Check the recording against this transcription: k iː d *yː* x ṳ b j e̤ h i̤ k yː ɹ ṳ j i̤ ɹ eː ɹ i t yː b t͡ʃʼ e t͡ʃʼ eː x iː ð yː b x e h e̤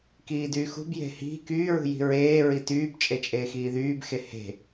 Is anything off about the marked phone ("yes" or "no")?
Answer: no